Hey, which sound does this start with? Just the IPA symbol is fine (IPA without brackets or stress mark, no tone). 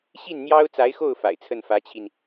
ɕ